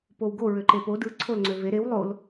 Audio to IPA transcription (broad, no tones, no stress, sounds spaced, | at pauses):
p o w ɡ o ɹ ø ǃ e p o d ɯ ǀʰ o l ŋ͡ǀ ø v e ɾ e w lˠ o l